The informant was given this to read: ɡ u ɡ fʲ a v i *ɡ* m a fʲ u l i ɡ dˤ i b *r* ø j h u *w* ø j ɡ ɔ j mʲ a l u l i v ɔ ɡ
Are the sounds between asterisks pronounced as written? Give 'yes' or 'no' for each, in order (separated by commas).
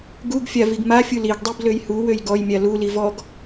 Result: yes, no, yes